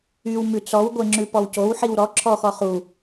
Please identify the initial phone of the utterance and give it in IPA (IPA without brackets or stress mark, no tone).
y